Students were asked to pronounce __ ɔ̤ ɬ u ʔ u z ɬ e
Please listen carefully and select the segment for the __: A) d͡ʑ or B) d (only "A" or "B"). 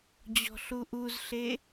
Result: A